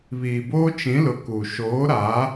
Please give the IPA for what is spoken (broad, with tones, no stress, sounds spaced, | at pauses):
β iː˨ b oː˦ t͡ʃ ĩ˨˦ l ʊ˨ k u˨ ʃ oː˨˦ ɾ a˨˦